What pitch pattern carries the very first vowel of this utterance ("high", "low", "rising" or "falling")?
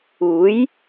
rising